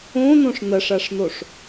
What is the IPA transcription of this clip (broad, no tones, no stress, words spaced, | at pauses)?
õnõʂ nɐʂaʂnoʂ